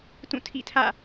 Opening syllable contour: falling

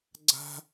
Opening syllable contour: high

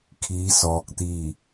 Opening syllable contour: rising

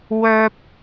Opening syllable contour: high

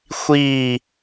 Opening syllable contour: falling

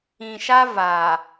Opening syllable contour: low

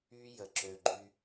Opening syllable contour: high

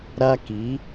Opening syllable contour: high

